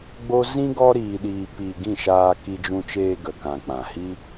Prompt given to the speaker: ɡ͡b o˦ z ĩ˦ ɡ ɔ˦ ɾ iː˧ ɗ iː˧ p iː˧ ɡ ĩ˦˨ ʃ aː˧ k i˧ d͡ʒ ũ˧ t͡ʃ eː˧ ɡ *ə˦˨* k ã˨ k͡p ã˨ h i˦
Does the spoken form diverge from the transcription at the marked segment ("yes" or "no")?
yes